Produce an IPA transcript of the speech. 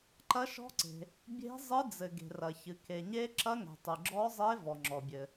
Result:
ǃ ɐ˦˥ ʃ ɔ̤˦˥ ǀ e̤˨ | bʲ e̤˦˥ zˤ ɨ˦˥ d͡z ɘ˨ ɡ e̤˨ r ɐ˨ ç ɨ˨ k e˨ ɲ e˦˥ ǁ ɐ˦˥ ŋ ɛ̤˨ tˤ ɨ˨ ɡ͡ǁ ɔ˦˥ zˤ e˦˥ v ɔ˨ ŋ͡ǁ ɔ˨ bʲ ɘ˨

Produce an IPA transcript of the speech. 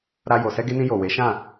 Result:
ɾ a˧ j o˨ s ɛ˧ ɡ e˧ n ĩ˧ j o˨ w e˨˦ ʃ ã˦˨

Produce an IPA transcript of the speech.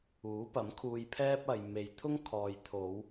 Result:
uː˨˥ p ɐ˨˥ m kʰ uː˧ j pʰ ɛː˥ p̚ ɐ˨ j m e˨ j t̪ʰ ʊ˥ ŋ kʰ ɔː˨ j t̪ʰ o˨˧ w

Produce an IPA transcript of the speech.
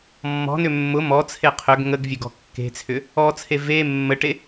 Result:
mː ɔ̤ n ʏ mː ʊ m ɔ t͡sʰ e qʰ ø ɡ ŋ ə ɡ vʲ ø ɡ ɔ̤ kː e̤ t͡sʰ ʏ | ɔ t͡sʰ e v e mː ə ʈ e

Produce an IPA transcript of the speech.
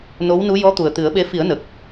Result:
n o˧˥ w n u˧˥ j ɔ˧˥ t̪ u˨˩ ə̯ t̪ ɨ˨˩˦ ə̯ ɓ e˧˥ f i˨˩˦ ə̯ n ə˨˩ k̚

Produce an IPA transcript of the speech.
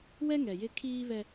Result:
w ɛ˦ ŋ ɛ˨ j ɪ˦ kʰ iː˦ β ɛ˦

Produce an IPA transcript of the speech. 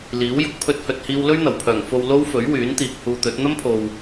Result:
l iː˨˥ w j ʊ˨˥ k̚ pʰ ɵ˥ t̚ h ɵ˧ t̚ h iː˥ w l ɵ˥ ɥ n̪ ɐ˨˩ w pʰ œː˨˩ ŋ f o˧ w l o˥ w f ɵ˨˥ ɥ w yː˨˥ n t̪ iː˨ k̚ h uː˧ t̪ ɵ˨˥ t̚ n̪ ɐ˥ m pʰ o˨ w

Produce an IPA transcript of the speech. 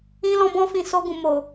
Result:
ĩ˦ l ɔ̃˧ b ɔ̃˧ f ĩ˨ s o˧ ɡ ũ˨ m o˨

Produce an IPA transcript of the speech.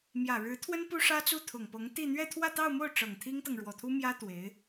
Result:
m j ä˨˩ ɻ ɻ̩˧˥ t̪ʰ w ə˥ n p u˥ ʂ ä˥ t͡s u˥˩ t̪ʰ ʊ˨˩ ŋ p ɤ˧˥ ŋ t̪ i˥˧ n̪ ɥ ɛ˥˧ t̪ʰ w ä˥˧ t̪ ɑ˥˧ ʊ̯ m o˥˩ ʊ̯ ʈ͡ʂ ɤ˨˩ ŋ t̪ʰ i˥ ŋ t̪ ɤ˨ ŋ ɻ w ɔ˨˩ t̪ʰ u˥ m j ä˥ t̪ w e˧˥ ɪ̯

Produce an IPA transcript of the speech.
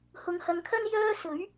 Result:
h ʊ˨˧ ŋ h ɐ˨˧ ŋ kʰ ɐ˥ n j œː˥ s ɵ˨˥ ɥ

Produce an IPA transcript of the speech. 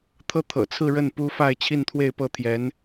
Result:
t̪ʰ ɤ˥ t̪ʰ ɤ̰˨˩ t͡sʰ ɹ̩˥˧ ɻ ə˥˩ n p u˥ f a˥˧ ɪ̯ t͡ɕʰ i˥˧ n t̪ʰ w e˥˧ ɪ̯ p ɤ˥˩ t̪ʰ j ɛ˧˥ n

